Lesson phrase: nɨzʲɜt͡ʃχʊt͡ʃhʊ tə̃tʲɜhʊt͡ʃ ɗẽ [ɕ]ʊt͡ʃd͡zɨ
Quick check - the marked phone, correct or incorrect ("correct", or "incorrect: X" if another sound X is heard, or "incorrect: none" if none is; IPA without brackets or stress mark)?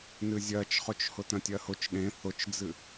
incorrect: θ